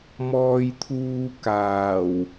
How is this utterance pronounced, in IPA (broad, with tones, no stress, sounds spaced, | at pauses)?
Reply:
m ɔː˧ j t̪ʰ uː˧ k aː˨˩ w